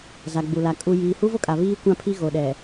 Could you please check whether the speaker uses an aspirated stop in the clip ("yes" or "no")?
yes